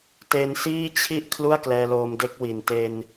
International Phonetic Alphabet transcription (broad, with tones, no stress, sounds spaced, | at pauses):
t e˧ n s iː˥˩ t͡ɕʰ i˥˩ ʔ kʰ l u˥˩ a̯ k l ɛː˧ l oː˧ m d e˦˥ k̚ w i˨˩ n t e˧ n